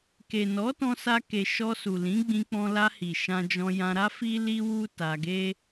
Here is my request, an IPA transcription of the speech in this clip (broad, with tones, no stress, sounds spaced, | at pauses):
k e˨ n ɔ˨˦ t ɔ̃˧ s a˧ k e˨ ʃ ɔ˧ s u˨ l ĩ˨˦ ɡ͡b ĩ˧ k͡p ɔ̃˧ l a˧ h i˨ ʃ ã˧ d͡ʒ ɔ̃˧ j ã˧ ɾ a˦ f i˦ l i˦ w u˦ t a˧ ɡ e˦